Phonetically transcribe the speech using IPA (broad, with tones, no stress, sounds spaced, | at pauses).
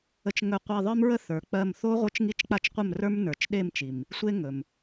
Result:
ə˧ t͡ʃ ŋ ɵ˧ qʷ i˧ ðˤ ə˞˦ m ɹ ə˦ θ ə˞˨ k͡p ɜ˧ m θ o˦ ʁʷ ə˞˦ t͡ʃ ŋ i˦ t͡ʃ k͡p a˦ t͡ʃ qʷ ə˦˨ m r ə˞˦ m n ə˞˨ t͡ʃ ɗ e˦˨ m t͡ʃ i˨ m | sʷ e˦ ŋ ɵ˨ m